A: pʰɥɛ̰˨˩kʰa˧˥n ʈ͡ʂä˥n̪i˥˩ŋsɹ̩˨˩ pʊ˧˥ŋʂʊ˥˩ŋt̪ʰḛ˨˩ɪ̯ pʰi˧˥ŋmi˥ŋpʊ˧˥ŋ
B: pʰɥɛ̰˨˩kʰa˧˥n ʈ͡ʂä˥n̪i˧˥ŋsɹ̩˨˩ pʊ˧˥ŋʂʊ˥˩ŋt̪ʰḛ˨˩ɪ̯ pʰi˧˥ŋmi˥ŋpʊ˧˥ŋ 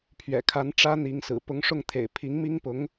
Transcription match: B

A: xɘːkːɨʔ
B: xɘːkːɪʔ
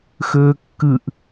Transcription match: A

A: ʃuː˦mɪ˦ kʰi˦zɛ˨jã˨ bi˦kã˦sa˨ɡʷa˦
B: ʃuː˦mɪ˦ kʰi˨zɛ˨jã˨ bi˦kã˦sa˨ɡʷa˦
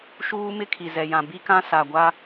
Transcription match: B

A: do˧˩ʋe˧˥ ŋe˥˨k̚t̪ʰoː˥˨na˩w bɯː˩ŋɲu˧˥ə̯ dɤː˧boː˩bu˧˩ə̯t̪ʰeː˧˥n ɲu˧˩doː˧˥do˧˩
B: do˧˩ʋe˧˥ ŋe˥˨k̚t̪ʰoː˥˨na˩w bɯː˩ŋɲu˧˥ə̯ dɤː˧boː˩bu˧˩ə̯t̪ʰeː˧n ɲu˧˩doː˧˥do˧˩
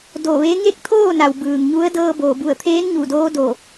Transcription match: A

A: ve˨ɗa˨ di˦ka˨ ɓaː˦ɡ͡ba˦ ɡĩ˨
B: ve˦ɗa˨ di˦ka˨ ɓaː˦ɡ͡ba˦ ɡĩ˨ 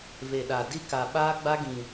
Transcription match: A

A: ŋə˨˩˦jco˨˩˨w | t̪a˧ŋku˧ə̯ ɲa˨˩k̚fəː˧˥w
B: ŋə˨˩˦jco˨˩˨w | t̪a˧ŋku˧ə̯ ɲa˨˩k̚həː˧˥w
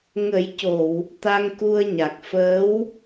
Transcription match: A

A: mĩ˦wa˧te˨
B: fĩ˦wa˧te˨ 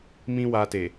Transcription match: A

